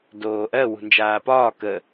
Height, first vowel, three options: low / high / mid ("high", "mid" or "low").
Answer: mid